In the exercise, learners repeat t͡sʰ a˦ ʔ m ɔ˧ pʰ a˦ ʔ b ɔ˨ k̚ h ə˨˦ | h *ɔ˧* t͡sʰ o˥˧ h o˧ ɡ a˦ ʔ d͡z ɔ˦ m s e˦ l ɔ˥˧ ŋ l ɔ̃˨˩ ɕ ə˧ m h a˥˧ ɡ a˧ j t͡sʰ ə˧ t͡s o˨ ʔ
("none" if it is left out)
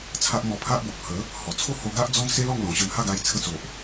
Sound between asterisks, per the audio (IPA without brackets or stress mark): ɔ˨˩